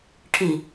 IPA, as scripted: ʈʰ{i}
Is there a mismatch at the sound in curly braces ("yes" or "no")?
no